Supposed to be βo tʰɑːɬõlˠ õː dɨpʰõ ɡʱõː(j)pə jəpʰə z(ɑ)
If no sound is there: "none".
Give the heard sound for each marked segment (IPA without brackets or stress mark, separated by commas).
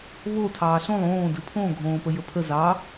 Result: none, ɑ